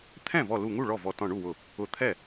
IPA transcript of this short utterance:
t̪ʰ ɛ̃˥˩ v ɔ˧˩ l u˧˩ ŋ u˥˩ ɭ ɔ˥˩ v ɔ˧˩ t ɔ̃˧˩ ɳ u˥˩ w ʊ˧˩ | ʊ˧˩ t̪ʰ ɛ˥˩

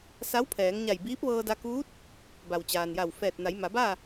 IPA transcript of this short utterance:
s a˧˥ w pʰ ɛː˩˧ ŋ ɲ a˧˩ j b iː˧˥ p̚ ʋ ɤː˧ d a˧ k uː˧˥ t̚ | b a˩ w t͡ɕ aː˩ n j a˧˩ w f ɛː˧˩ t̚ n a˩˧ j m a˩˧ b aː˥˨

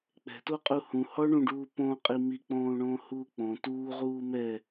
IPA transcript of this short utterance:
k͡p ɛ̤ t o qʼ u h ũ h ɔ ɳ ũ ɖ uː p õ qʼ i m i k͡p õː ɳ õː h uː k͡p õ t uː ʁ uː m ɛ

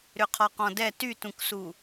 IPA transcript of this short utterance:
ɾ ʏ qʰ ɔ q ɔ̃ d ɛ t y t ũ k s u

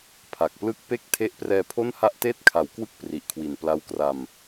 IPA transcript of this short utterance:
pʰ a˨˩ k̚ p l ɯ˦˥ k̚ p e˥˩ k̚ tʰ e˦˥ ʔ p r ɛː˧ pʰ o˥˩ n h a˥˩ ʔ t eː˥˩ t̚ kʰ a˩˦ w k w ɯ˦˥ k̚ p r i˨˩ ʔ kʰ w i˨˩ n p l a˦˥ w k r a˧ m

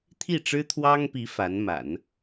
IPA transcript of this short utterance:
t̪ʰ i˥˩ ʈ͡ʂ ɻ̩˥ t̪ʰ w ɑ˥ ŋ p i˧˥ f a˧˥ n m a̰˨˩˦ n

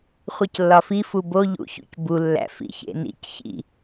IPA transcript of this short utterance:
χʷ i c lː ɒ f i f u b o ʎ ṵ ç ṵ c b u lː æ̰ f ḭ ç ḛ n ḭ c ç ḭ

